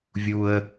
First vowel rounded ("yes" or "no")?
yes